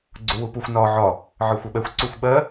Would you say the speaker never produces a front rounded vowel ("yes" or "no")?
yes